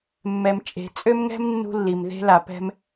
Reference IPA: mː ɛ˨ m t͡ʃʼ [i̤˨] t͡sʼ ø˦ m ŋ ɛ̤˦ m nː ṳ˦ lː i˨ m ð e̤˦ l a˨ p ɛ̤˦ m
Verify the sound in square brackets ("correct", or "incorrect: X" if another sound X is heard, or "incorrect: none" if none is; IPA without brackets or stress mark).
incorrect: e̤˨